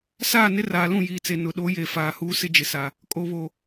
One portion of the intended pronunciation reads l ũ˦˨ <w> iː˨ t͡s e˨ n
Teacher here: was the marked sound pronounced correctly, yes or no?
no